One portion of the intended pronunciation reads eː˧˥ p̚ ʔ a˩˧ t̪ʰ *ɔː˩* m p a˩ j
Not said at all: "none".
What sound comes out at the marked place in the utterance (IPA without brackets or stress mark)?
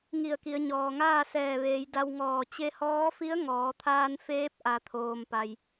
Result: oː˩